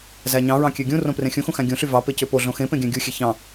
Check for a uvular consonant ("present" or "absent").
absent